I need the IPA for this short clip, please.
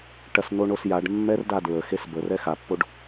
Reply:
ʈ ɐ s n o ɳ o s j a ɖ mː ɛ r d a d ɹ ə x e s b ə r ɛ x a pː o ɖ

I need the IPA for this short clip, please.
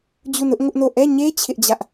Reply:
d͡ʑ u˦˨ n ʊ˦ ʔ ŋ ʊ˦ ʔ n o˦˨ ʔ ɛ˦˨ ɲ e˦ t͡ɕʰ ɪ˦ ʔ d͡ʑ ä˦ ʔ

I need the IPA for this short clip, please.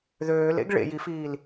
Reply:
ð øː l ḛ ɡ ɭ ḛ j i f iː l

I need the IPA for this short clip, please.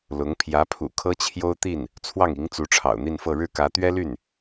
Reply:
l ʊ˧˥ ŋ pʰ j ä˧˥ pʰ ṵ˨˩ kʰ ɤ˥ t͡ɕʰ j o˥ ʊ̯ t̪ i˥˩ n | t͡sʰ w ɑ˥˩ ŋ i˧˥ ŋ t͡s u˧˥ ʈ͡ʂʰ ɑ̰˨˩ ʊ̯ n̪ i˥˧ n f ɤ˥˧ ɻ ɻ̩˥˩ k ä˧˥ t̪ ɥ ɛ˥ l y˥˩ n

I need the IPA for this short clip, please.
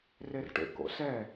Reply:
r e r ʈ ḛ k o̰ s ɛ

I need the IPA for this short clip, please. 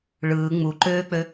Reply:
ɭ ɯː ŋ͡m u ǃ øː k͡p ø

